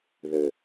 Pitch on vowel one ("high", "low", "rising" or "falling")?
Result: low